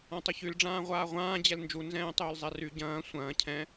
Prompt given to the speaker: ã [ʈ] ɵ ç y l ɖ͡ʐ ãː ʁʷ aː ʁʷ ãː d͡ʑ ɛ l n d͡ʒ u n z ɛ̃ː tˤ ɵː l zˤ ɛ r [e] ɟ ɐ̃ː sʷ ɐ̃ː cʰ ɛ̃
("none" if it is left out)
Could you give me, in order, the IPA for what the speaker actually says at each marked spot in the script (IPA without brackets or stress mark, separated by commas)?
tˤ, y